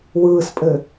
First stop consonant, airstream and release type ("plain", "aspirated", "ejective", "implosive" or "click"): ejective